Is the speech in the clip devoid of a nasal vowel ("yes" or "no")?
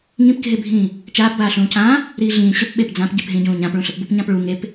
no